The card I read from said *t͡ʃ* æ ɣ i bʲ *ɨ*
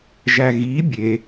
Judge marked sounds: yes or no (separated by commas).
no, no